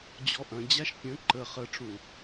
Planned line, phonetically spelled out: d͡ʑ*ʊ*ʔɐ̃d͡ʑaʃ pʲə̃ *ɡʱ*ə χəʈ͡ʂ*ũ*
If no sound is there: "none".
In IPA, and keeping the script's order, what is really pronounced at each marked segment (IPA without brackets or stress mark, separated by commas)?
ɔ, ǃ, ũ